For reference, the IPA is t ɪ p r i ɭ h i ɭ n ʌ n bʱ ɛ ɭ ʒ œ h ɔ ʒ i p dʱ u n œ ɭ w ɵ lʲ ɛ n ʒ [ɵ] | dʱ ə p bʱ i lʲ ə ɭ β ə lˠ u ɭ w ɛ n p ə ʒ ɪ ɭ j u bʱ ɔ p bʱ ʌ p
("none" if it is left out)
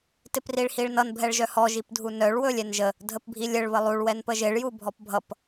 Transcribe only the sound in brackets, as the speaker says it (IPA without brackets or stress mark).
ə